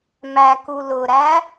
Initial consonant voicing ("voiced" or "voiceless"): voiced